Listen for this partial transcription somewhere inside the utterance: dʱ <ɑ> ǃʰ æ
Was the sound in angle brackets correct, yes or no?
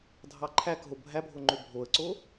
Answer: yes